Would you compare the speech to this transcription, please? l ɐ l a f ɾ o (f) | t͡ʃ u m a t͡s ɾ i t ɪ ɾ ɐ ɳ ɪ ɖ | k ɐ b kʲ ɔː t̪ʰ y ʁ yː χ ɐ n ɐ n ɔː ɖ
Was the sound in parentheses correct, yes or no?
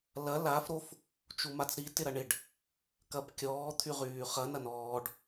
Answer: yes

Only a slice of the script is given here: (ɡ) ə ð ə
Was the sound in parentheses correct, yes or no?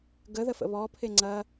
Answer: yes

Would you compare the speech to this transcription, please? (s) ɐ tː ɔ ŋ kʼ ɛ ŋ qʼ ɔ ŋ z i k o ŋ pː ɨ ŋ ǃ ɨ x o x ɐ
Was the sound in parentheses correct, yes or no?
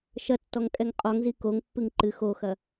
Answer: no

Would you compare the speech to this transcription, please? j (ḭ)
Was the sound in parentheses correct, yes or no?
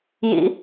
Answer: yes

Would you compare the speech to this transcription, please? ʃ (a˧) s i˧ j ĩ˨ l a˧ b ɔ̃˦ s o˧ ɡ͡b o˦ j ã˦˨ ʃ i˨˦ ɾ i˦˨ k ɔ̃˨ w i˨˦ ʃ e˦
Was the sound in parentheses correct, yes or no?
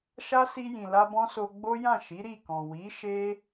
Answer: no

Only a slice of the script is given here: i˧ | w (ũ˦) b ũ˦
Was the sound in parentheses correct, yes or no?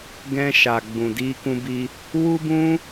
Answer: no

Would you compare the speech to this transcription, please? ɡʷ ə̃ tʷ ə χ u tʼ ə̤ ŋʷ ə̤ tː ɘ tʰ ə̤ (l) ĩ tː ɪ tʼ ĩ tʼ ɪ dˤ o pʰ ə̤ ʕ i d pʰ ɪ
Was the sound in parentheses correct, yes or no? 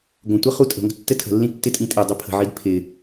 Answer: no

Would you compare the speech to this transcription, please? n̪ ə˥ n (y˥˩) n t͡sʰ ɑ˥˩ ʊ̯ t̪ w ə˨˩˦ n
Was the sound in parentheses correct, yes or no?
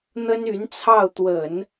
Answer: no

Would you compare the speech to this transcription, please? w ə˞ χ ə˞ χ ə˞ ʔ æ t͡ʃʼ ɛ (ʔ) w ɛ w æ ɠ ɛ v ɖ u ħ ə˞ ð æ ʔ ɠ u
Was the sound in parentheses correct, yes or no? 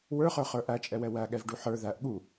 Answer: no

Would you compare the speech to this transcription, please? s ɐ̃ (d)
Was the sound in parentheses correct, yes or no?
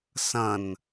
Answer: no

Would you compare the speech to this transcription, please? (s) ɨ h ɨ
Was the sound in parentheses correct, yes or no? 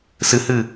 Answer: yes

